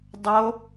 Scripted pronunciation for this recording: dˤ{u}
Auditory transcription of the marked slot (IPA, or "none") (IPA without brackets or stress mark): o